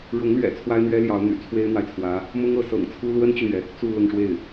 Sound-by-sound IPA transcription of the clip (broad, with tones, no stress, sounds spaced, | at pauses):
ɻ ʊ˧˥ ŋ l ɥ ɛ̰˨˩ t͡sʰ w a˥ ɪ̯ n̪ ɥ ɛ˥ l j ɑ˧˥ ʊ̯ n̪ y̰˨˩ t͡sʰ w e˥ ɪ̯ n̪ w a˨ ɪ̯ t͡sʰ w ä˧˥ | m ʊ˥ ŋ ɤ˧˥ s ɤ̰˨˩ ŋ t͡sʰ u˥ l w ə˥ n t͡ɕ y˨ n̪ ɥ ɛ˩ | t͡s u˥˧ l ʊ˥˧ ŋ ʂ w e˥˩ ɪ̯